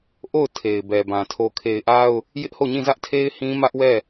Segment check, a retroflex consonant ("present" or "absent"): absent